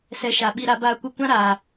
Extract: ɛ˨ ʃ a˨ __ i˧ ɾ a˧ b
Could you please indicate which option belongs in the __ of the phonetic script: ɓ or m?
ɓ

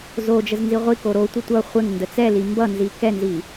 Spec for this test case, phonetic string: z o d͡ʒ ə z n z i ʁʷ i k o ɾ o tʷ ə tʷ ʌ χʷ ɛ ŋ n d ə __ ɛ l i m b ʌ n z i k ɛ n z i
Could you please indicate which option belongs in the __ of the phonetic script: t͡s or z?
t͡s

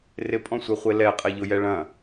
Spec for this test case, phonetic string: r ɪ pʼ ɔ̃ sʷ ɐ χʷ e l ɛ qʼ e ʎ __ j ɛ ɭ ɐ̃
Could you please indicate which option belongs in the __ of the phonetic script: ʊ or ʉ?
ʊ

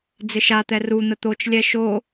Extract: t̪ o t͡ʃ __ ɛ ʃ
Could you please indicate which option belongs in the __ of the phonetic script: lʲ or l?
lʲ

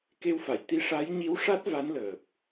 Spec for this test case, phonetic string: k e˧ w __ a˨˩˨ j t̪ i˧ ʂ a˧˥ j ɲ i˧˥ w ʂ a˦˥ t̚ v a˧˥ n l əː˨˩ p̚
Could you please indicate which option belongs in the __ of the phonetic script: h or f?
f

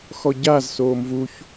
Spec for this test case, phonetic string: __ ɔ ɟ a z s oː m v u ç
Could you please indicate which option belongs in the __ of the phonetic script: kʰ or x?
x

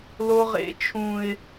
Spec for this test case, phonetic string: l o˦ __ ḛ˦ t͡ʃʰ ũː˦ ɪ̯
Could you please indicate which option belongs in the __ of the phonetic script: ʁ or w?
ʁ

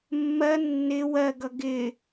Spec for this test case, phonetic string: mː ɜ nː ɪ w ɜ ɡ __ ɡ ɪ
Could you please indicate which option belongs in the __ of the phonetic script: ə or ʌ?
ʌ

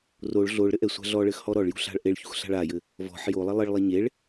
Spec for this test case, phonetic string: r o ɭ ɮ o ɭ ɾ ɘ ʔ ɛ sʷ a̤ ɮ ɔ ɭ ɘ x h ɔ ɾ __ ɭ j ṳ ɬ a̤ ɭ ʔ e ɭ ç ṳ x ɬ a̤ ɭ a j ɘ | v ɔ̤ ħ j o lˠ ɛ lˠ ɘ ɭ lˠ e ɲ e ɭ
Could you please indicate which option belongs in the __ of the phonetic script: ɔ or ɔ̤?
ɔ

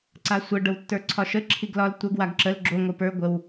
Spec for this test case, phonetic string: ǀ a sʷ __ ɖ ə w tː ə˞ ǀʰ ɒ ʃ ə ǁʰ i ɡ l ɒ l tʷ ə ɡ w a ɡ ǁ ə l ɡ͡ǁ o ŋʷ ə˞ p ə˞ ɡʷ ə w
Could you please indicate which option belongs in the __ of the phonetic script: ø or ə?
ə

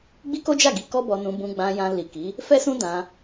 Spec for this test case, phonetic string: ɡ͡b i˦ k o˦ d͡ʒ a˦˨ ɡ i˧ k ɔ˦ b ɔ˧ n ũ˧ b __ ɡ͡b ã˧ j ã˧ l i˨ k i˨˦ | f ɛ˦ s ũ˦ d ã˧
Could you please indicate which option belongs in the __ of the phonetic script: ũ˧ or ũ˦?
ũ˧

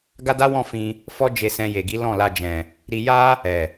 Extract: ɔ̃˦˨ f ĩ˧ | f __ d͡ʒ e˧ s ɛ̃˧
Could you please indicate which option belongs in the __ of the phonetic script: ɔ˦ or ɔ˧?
ɔ˦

